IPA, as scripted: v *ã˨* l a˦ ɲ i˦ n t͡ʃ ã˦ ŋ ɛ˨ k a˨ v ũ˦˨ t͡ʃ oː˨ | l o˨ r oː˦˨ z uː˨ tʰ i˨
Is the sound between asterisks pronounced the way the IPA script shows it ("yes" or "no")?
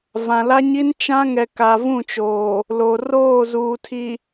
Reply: yes